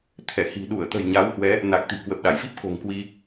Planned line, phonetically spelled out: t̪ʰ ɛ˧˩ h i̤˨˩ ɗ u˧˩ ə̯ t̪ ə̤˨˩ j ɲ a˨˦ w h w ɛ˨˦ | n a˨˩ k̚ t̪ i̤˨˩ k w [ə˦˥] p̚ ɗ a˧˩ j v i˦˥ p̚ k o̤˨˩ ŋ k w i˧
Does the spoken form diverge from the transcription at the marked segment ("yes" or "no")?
yes